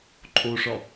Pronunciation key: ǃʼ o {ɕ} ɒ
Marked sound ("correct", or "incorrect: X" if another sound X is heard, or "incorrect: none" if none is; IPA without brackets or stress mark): incorrect: ʂ